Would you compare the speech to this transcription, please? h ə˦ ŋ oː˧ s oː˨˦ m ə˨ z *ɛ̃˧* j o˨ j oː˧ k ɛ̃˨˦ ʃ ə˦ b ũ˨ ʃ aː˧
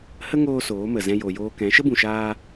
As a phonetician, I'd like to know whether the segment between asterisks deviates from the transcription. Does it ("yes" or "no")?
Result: no